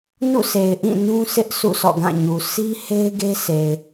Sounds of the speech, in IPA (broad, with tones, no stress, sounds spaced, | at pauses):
n ṵ˦˨ s e˨ ɪ̯ ʔ ĩ˦˨ n ũ˦ sʰ ɪ˦ ʔ s ṵ˦˨ sʰ ɔ̰˦˨ ɡ ã˦˨ ɲ u˨ s i˦ h e˦ ɪ̯ ɡ e˦ s e˨ ɪ̯